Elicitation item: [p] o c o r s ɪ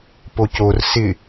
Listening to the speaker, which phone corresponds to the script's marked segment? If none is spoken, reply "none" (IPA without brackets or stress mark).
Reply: p